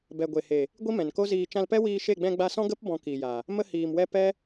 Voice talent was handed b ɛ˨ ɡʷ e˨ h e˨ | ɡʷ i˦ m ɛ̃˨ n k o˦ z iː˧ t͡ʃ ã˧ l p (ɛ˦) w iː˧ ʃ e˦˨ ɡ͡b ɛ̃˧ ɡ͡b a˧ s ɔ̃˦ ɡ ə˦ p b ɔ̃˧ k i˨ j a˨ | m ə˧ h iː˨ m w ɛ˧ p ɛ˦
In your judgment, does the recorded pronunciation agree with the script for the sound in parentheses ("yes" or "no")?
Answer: yes